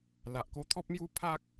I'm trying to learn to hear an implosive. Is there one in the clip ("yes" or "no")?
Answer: no